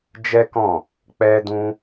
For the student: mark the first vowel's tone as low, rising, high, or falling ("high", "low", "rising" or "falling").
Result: high